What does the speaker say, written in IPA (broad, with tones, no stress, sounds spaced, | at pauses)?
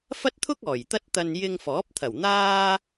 f ɐ˥ t̚ t̪ʰ ʊ˥ k̚ ɔː˨˩ j t̪ ɐ˥ t̚ t̪ ɐ˧ n j ɪ˧ ŋ f ɔː˨˥ p̚ t̪ʰ ɐ˨˩ w n̪ aː˥